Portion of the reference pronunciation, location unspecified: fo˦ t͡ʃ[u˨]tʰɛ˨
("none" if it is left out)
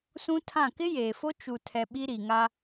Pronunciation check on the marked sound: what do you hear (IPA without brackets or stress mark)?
u˨